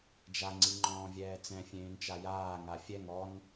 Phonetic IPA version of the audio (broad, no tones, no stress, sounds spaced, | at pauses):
d͡ʒ a ŋ͡ǀ i ŋ͡ǃ ɔ̃ː vʲ ɛː t͡s ɛ̃ fʲ ẽː n t͡ʃ a j aː ŋ a fʲ ɛ ŋ ɔ n